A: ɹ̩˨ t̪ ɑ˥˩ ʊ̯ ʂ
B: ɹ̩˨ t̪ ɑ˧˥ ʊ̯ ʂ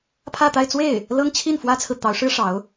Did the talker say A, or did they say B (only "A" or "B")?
B